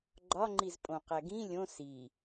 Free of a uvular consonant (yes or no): no